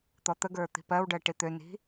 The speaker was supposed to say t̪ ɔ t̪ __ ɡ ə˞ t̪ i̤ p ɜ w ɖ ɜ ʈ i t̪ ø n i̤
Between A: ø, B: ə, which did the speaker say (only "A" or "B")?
B